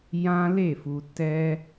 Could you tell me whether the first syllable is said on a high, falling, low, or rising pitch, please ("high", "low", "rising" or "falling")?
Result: high